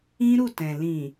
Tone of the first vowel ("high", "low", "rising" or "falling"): high